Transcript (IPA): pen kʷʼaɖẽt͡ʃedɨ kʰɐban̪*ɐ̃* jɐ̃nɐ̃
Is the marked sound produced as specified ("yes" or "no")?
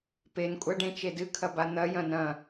no